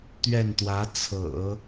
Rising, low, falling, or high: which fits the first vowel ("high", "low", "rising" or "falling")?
falling